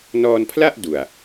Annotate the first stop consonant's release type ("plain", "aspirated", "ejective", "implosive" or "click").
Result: aspirated